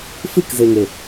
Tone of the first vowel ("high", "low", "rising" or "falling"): falling